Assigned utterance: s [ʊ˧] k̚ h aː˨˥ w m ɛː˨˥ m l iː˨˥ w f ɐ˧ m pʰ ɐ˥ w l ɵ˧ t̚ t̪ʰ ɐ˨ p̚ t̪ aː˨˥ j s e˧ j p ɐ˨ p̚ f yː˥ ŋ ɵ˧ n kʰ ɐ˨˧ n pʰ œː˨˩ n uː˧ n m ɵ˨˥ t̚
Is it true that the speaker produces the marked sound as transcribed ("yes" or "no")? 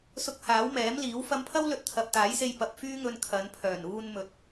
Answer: yes